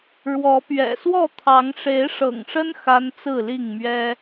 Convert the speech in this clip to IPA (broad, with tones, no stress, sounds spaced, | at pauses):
ɻ w ɔ˨˦ p ɥ ɛ̰˨˩ s w ɔ˥˨ t̪ʰ ɑ˨˦ ŋ ʂ e˨˦ ɪ̯ ʂ ɤ̰˨˩ ŋ ʂ ə˦ n x a˦ n t͡s ɹ̩˥˨ l i˥˨ ŋ m ɥ ɛ˦